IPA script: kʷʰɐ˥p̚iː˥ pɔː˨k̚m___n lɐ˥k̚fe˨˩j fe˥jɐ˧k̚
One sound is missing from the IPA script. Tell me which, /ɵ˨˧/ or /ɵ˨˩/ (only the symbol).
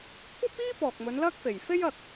ɵ˨˧